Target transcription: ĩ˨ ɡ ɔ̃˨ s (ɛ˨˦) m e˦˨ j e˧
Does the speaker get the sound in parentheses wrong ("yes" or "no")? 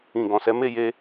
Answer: no